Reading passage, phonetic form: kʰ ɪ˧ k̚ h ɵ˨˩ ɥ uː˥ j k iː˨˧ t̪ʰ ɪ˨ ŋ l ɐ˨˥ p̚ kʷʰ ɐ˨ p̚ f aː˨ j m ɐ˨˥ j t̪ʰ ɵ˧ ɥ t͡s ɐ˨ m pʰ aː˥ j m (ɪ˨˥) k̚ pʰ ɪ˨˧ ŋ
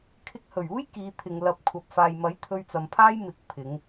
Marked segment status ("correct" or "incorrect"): correct